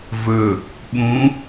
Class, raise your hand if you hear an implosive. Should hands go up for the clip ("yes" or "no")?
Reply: yes